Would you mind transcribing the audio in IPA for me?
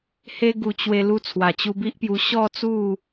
h e˦ ɡ u˧ t͡ɕ w e˧ l u˧ t͡sʰ w a˨˩ t͡ɕ u˧ b i˦ ʔ p j u˧ ɕ ɔ˥˧ t͡s u˥˧

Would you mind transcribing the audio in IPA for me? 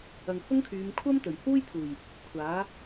ɐ˨ ŋ h ʊ˥ ŋ kʰ yː˨˧ m kʷʰ ɐ˥ m t̪ ɵ˨˩ ɥ h uː˥ j t̪ʰ uː˨˩ j | kʷʰ aː˨˥

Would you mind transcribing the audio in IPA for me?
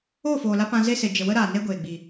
oː˦˨ f oː˨ l a˧ p ã˧ z e˦ s e˨ d͡ʒ ə˨ w ə˦ ɾ aː˨ n e˦ ɡʷ eː˨ ɡ͡b i˨

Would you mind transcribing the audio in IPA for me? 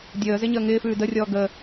dʲ əː z e ɲ əː ŋ ɪː f ʉː d ə rʲ ɔː ɡ ə

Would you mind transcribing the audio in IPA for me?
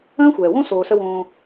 ə̃ː˦ xʷ ɛː˨ w õ˦ s oː˧ s ə˦ w õː˧

